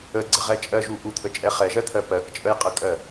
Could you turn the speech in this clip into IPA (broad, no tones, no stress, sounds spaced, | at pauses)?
ə ɡ͡ǀ ə ʁ ɛ t͡ʃʼ ɜ ʒ u ʔ u t̪ʰ ə t͡ʃʼ ɛ χ ɛ ʒ ɜ t̪ʰ ɜ p ɜ k t͡ʃʼ ə j qʼ ə kʼ ɜ